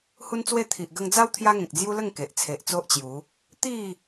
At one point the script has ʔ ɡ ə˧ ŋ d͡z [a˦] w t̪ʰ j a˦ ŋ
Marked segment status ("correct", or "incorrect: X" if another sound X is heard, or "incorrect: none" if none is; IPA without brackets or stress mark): correct